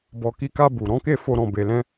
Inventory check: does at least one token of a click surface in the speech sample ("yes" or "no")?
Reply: no